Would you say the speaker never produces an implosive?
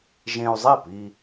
yes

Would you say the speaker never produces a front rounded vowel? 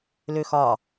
no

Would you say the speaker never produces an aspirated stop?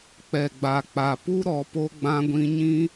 yes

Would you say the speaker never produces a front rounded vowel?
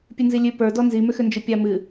no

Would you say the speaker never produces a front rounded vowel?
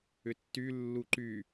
no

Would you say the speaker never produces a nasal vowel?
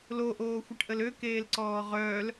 yes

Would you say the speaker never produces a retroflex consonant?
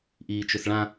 no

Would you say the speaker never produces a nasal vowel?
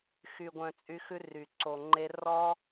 no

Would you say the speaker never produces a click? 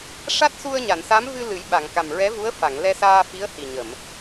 yes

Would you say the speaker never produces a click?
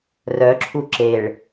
no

